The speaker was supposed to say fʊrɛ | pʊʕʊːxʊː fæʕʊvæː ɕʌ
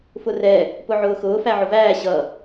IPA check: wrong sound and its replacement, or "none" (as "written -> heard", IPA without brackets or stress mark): none